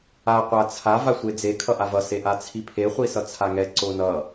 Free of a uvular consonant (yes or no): no